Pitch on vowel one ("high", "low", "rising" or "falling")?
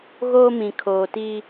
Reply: high